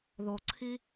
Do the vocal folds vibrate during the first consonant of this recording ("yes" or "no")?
yes